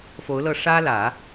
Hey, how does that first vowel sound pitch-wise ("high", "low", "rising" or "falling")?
rising